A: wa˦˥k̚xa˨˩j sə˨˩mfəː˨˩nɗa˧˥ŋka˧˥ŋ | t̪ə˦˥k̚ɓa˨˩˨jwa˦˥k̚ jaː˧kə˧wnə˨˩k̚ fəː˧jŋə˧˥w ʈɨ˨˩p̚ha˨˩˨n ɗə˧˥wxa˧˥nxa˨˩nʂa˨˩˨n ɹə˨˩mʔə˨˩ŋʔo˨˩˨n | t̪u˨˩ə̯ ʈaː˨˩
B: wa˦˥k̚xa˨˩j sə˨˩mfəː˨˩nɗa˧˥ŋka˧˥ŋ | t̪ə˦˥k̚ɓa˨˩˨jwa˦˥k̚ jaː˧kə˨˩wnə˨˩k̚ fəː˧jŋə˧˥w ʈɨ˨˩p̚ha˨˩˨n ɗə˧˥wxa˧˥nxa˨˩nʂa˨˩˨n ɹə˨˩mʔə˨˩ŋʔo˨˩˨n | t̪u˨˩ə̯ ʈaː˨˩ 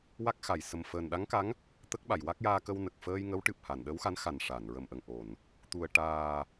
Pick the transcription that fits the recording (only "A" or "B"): A